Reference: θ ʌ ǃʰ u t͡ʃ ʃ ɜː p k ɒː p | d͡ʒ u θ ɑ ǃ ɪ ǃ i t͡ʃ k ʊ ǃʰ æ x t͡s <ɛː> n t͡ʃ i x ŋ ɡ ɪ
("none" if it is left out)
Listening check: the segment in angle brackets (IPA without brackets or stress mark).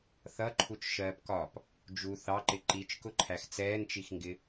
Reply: ɛː